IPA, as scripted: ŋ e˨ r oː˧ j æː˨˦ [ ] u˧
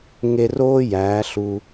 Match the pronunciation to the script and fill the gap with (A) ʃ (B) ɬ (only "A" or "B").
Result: B